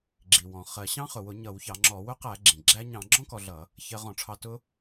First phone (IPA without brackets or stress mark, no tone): ɡ͡ǁ